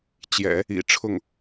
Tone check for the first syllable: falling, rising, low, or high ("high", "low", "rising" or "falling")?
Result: low